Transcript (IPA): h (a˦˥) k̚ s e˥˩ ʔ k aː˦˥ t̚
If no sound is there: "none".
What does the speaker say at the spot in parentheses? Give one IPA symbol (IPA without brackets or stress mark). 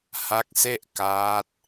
a˦˥